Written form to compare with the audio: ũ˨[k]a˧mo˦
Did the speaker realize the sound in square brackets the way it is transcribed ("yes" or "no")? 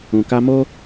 yes